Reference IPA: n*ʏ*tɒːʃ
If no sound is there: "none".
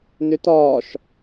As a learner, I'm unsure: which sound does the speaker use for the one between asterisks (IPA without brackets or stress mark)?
ʏ